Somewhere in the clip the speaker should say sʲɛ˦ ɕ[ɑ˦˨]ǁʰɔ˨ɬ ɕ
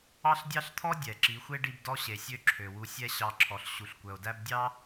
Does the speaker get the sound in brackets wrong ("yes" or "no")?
yes